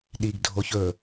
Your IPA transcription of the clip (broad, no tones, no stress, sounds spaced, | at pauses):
ɗ i ɡ dʱ o ç ɵ